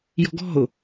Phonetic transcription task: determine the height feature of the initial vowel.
mid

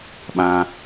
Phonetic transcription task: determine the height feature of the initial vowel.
low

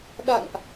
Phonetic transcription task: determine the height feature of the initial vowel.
low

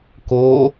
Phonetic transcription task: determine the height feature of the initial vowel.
mid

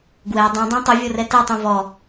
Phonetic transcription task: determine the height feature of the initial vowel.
mid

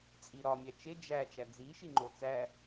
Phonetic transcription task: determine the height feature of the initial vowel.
high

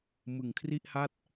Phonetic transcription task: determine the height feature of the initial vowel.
high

